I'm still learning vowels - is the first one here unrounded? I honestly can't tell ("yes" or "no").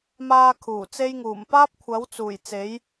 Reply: yes